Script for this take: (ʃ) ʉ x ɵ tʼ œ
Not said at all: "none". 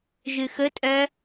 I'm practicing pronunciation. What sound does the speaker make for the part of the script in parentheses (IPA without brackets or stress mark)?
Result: ʒ